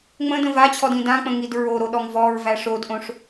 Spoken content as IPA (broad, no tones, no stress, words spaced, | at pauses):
ŋ͡mə̃də̃ vat͡ɕʰɔdĩ dãk͡pə̃ŋid ɹoɾoɗɔŋ vɔɹvæ ʂodʔõʂ